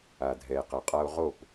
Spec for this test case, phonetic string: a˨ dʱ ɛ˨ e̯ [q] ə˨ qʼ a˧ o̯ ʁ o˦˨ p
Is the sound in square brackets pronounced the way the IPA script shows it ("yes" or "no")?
yes